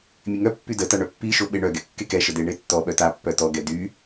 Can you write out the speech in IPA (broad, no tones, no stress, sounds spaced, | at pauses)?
mʲ e ŋ œ pː y d ə t a ɳ œ pː i ʃ o ɓ e ɳ œ ɡ ɛ kː e k ɛ ʃ ə d e ɳ e tː ɔ ɓ œ t a pː œ t ɔ ɡ ɛ d y